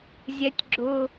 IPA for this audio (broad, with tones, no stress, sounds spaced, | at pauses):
zʲ ɛ˩˥ tʲ ɡ͡ǁ ʊ˨